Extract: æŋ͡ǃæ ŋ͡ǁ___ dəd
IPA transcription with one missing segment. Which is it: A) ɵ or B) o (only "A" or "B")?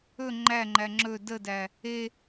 A